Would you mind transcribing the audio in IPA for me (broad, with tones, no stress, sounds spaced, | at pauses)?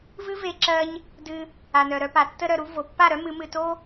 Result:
v ɨ˦ v e˧ ǁ ɜ˧ ɲ | d ɨ˧ | a˨ n œ˨ ɾ œ˧ p a˨ tː ə˧ ɾ œ˨ ɾ u˧ v o˨ pː a˦˨ ɾ œ˦ m ɨ˨˦ m ɨ˧ t o˦